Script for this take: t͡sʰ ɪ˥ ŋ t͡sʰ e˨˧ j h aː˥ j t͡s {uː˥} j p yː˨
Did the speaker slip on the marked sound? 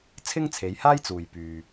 yes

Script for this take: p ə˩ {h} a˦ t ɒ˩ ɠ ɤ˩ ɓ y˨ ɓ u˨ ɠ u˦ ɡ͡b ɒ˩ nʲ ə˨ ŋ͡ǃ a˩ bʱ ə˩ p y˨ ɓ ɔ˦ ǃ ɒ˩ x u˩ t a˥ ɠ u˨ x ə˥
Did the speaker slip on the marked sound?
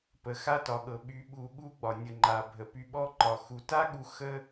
yes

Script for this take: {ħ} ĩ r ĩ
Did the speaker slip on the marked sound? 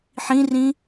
no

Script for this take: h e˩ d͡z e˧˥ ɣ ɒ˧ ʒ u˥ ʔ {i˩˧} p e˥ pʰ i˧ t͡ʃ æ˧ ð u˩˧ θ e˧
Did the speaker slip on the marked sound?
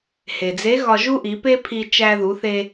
no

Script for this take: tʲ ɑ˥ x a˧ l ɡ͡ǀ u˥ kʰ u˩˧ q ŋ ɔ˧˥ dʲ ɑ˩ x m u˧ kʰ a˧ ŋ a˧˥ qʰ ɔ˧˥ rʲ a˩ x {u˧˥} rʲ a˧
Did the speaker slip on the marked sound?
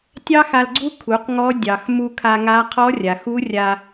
no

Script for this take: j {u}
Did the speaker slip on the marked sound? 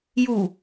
no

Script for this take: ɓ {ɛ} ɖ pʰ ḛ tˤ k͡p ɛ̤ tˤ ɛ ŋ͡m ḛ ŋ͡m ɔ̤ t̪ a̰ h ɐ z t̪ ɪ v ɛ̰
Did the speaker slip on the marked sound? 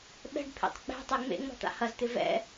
yes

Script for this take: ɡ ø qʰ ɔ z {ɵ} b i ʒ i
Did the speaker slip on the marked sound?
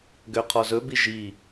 no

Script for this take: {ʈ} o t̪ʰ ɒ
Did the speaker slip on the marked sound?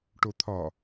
no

